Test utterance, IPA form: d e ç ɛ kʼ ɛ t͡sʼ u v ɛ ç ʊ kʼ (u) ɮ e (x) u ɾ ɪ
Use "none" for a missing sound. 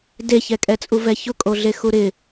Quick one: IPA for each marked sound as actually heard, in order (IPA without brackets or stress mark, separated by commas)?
o, x